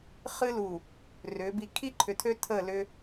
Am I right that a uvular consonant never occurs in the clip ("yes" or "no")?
no